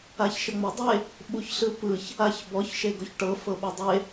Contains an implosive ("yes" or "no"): yes